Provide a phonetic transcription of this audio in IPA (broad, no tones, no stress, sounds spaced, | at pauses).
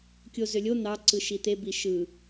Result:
kʲ o z ø lʲ o n̪ ɑ ǀ ɯ ʃ i t̪ e b i ʃ ɯ